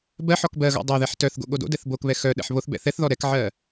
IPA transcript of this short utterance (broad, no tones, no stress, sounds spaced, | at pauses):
b ɜ ħ ɔ k b ɜ ɣ ɔ̰ dˤ o ð ɛ ħ t œ θ ɡ o̰ ɠ o d o̰ d ɛ θ b o k β ɛ x œ ɗ ɛ̰ ħ β o θ b ɛ̰ θ ɛ θ ð ɔ ɾ ɛ k ʕ ɜ